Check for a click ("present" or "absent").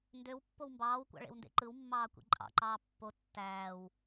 present